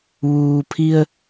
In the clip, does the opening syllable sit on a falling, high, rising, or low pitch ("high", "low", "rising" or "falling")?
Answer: low